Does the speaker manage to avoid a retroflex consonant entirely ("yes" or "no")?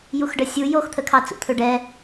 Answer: no